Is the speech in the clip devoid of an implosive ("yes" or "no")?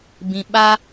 no